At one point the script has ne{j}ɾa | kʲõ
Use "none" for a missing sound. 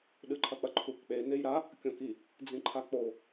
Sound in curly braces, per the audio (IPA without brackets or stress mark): j